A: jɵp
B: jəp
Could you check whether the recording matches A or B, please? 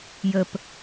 B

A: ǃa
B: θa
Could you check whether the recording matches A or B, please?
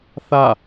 B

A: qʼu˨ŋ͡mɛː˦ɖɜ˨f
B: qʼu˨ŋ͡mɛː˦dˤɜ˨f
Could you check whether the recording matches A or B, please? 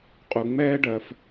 A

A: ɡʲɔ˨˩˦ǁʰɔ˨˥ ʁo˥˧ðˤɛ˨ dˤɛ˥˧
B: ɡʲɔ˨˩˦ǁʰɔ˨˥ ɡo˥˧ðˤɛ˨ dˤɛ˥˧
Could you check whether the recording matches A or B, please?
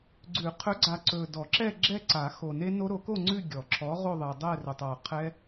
A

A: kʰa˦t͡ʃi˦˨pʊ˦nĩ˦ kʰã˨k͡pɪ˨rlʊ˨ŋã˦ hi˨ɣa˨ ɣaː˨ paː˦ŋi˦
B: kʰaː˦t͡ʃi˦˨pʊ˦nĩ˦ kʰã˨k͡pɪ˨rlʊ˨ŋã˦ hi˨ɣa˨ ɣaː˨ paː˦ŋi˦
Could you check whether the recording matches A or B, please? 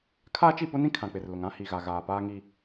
B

